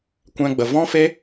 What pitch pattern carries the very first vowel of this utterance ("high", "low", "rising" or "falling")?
high